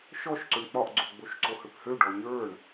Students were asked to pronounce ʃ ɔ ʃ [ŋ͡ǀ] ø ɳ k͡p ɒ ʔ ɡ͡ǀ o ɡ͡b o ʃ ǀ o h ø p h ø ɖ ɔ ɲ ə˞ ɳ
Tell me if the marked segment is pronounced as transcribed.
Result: no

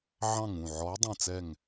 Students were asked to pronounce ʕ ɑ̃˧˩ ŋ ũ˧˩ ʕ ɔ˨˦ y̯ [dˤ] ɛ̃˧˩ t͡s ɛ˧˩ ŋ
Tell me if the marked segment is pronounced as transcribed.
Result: yes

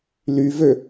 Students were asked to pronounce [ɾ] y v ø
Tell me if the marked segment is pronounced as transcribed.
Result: no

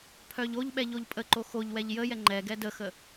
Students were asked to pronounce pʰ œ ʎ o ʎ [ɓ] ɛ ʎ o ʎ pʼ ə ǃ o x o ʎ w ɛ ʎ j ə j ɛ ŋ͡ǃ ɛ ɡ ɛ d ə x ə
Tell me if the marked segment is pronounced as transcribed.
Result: yes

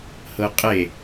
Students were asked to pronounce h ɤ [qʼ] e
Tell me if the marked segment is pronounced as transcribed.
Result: yes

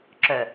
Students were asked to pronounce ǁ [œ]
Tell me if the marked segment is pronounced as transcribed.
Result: yes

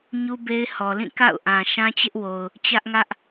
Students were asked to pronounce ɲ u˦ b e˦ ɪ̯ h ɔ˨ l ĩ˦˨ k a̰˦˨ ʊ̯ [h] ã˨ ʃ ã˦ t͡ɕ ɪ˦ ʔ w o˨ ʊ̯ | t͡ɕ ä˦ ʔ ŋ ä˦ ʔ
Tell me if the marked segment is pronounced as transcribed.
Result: no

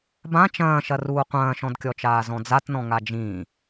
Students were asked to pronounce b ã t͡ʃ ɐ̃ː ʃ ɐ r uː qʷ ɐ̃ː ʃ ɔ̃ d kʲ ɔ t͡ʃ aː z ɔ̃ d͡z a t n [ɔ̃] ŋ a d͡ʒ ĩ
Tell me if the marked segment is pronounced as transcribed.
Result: yes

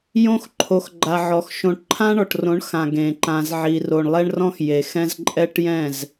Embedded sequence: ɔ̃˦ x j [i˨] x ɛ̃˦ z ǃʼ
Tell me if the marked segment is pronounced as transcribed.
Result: no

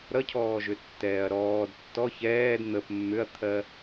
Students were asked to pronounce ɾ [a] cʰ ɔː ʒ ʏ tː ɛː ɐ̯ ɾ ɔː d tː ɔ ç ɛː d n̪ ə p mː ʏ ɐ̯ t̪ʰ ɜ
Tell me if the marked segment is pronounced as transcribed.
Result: no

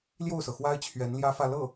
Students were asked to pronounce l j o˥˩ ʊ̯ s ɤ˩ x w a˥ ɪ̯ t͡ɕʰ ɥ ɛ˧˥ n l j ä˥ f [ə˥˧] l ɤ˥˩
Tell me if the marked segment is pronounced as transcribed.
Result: no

